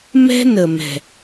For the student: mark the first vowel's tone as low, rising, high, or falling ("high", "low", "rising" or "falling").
high